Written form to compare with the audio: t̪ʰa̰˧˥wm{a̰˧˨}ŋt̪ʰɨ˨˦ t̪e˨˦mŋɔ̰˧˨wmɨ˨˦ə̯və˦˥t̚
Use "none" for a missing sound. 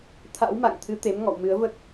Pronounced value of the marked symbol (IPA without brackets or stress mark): a̰˧˨